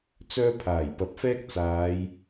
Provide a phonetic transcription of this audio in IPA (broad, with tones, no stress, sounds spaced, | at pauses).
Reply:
t͡s œː˧ pʰ aː˨˩ j p ɐ˨ p̚ f ɛː˥ k̚ t͡s aː˨˧ j